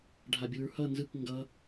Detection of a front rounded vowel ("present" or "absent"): absent